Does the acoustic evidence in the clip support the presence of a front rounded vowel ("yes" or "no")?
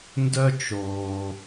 yes